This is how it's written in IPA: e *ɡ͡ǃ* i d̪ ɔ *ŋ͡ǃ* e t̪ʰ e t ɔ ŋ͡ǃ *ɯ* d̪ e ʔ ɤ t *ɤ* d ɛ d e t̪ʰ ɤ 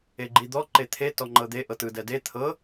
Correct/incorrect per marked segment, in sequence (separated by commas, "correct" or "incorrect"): correct, incorrect, incorrect, incorrect